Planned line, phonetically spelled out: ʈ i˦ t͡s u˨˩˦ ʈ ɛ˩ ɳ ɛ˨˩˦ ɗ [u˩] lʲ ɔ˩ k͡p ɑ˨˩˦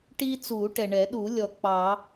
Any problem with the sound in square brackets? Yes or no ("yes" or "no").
yes